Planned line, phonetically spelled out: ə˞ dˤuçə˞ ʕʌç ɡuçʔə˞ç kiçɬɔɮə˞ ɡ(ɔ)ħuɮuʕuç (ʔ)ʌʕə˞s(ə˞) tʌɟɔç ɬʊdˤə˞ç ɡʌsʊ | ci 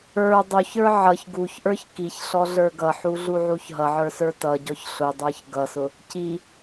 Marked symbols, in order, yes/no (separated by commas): no, no, yes